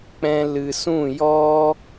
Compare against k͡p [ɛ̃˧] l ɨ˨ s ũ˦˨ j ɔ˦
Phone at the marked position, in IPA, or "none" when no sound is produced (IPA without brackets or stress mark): ɛ̃˧